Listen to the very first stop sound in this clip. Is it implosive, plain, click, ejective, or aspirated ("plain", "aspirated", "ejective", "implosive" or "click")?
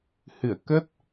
plain